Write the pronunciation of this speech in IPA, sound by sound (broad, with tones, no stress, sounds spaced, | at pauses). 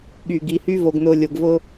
ɠ yː˨ ɡ i˨ h y˦ v o˨ ɡ n ʊː˨ lʲ ʊː˨ ɡ v ʊː˦